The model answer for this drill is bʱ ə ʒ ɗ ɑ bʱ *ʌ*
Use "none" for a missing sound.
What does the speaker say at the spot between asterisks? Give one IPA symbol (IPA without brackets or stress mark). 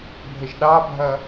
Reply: ʌ